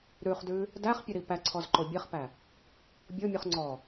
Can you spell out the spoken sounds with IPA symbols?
ɾ ʉ χ d ʉ | d æ χ pʲ ə ɾ i p æ ǀʰ ɔ z ǃ o bʲ ɛ χ p æ | bʲ o mʲ u χ ŋ͡ǀ ɔ

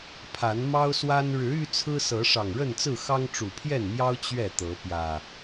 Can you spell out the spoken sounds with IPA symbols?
pʰ a˨˦ n m ɑ˦ ʊ̯ s w a˦ n ɻ ɻ̩˨˦ y˦ t͡sʰ ɹ̩˦ s ɤ˨˦ ʂ ɑ˨˩ ŋ ɻ ə˥˨ n t͡s ɹ̩˥˨ x ɑ˦ ŋ ʈ͡ʂ u˨˩ pʰ j ɛ˥˨ n m j ɑ˦ ʊ̯ t͡ɕ ɥ ɛ˥˨ t̪ ɤ˨˦ p j ä˨˩

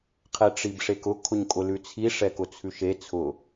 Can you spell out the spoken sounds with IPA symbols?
qʰ ɛ ʈ͡ʂ i b ʂ e k ʊ kʰ ʊ ɲ kʼ ʊ l ʉ t͡sʰ i ʂ ɛ k ʊ t͡sʰ ʉ ʃ e t͡sʰ ʊ

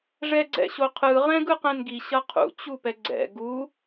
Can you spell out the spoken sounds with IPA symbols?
ʐ ɛ ɡ͡ǀ ɛ̰ ɕ o qʰ ɯ ʁ ɛ̃ ɡ ɯ q ɛ̃ n ɡ i ɕ ʌ qʰ ṵ t͡ɕ u p ɛ ɡ͡ǀ ɛ̰ ɡ u

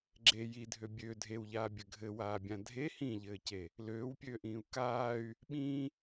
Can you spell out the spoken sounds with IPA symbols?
ɡ͡ǁ e j i dʱ ø bʲ ø dʱ e w ʎ aː bʲ ɘ ɡʱ ɘ w aː bʲ ã dʱ e h ĩ ʎ ɘː c e | l øː w pʲ øː ʔ ĩː u̯ k aː y̯ | ɓ ĩː

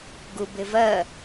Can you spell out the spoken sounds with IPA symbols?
ɡ u b ɪ v ɜ

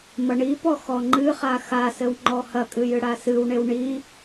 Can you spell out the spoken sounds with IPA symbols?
m ɐ ɳ i p ɔ x ɔ ŋ͡ǃ ɨ χ a x a s ɘ w ŋ͡ǃ ɔ h ɐ kʼ ɨ j ɨ ɽ a s ɨ w ɳ e w ɳ i

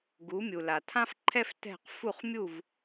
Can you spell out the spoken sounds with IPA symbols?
ɡ u˩˥ mʲ u˩ l a˩ tʰ ã˥ f ǃʰ ɛ˥ f t ɛ̤˥˩ q f u˥˩ χ mʲ u˥˩ v

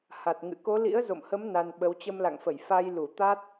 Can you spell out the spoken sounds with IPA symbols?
h a˨˩ t̚ ŋ ɨ̰˧˨ k o˨˦ l ḭ˧˥ ə̯ z o̰˧˨ m h ə˨˦ m n a˧ n ɓ ə˨˦ w t͡ɕ ə˧ m l a̰˧˨ ŋ f ə˧˩ j f a˧ j l u˧˩ t̪ a˦˥ t̚

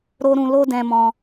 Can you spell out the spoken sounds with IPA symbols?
ɾ o˦ ɾ ũ˧ l o˦ d ɛ̃˧ m ɔ̃˧

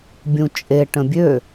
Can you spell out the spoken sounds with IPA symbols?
bʲ ũ t͡ʃʼ e ʈ ə̃ bʲ ø

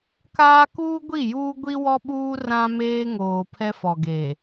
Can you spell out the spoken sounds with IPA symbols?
k aː˦ k uː˦ ɡʷ i˦˨ j uː˦ ɡʷ i˦ w ɔ˦ ɓ uː˦ r ã˦ m eː˦ ŋ oː˨ pʰ ɛ˦ f ɔ˨ ɡ eː˨

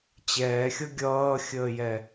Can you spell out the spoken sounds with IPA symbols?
t͡ɕ ɛː xʲ ʌ ɡʲ ʌː xʲ əː j ɛ

